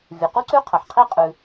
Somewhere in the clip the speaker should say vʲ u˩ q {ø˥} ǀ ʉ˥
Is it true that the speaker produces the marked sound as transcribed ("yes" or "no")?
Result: no